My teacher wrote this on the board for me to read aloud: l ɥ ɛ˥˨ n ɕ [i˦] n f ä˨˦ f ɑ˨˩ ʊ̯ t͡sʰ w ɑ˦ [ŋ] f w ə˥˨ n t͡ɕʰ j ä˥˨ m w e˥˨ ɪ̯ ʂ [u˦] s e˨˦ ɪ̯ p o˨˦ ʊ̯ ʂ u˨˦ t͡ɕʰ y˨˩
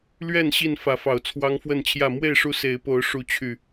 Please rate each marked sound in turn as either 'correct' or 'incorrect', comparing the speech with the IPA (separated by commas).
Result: incorrect, correct, correct